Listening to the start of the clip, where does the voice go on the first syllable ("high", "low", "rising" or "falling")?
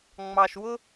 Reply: low